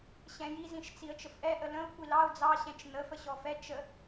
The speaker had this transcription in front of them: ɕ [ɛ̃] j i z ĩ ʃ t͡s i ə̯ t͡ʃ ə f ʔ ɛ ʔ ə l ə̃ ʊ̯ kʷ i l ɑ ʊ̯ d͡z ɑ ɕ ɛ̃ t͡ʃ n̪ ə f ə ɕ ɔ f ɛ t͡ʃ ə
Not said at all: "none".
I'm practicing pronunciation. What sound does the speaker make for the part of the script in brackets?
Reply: ɛ̃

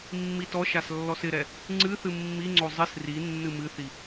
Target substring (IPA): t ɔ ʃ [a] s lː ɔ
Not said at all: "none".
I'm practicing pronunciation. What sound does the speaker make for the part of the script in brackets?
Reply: a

